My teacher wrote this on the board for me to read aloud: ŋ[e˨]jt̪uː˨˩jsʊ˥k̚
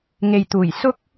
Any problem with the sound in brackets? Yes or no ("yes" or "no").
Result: no